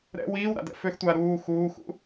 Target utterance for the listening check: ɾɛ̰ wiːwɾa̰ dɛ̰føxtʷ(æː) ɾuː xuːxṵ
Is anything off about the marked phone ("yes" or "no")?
yes